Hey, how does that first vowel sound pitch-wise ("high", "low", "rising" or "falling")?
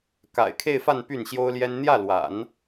low